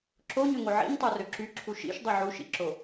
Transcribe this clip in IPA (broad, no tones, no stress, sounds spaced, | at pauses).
ǁ o ɲ ø ŋ o ʕ ḭ ɲ tˤ o r ø ǁ y ǁʰ u ʃ ḭ ʃ dˤ y ʕ u ʃ ḭ ǁ o